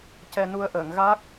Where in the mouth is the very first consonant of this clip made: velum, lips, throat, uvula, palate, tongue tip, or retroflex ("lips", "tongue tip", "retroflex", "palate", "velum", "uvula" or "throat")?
palate